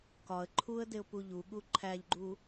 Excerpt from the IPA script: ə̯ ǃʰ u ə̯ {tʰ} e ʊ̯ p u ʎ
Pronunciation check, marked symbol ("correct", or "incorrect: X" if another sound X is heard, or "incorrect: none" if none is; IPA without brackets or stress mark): incorrect: d